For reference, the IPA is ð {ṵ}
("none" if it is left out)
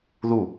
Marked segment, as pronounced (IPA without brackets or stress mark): u